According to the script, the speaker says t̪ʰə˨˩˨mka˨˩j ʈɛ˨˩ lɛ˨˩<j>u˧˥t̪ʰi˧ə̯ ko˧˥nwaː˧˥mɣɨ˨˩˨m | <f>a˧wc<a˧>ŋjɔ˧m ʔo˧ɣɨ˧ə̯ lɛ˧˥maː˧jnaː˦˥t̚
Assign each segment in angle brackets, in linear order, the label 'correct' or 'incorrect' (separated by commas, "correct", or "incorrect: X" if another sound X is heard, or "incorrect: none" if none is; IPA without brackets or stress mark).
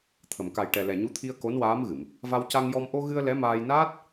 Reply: incorrect: ɲ, incorrect: v, correct